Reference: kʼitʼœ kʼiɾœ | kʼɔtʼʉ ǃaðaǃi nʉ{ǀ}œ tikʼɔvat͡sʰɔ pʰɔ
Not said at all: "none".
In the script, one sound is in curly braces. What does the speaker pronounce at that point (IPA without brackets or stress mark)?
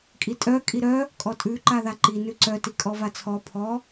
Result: ǀ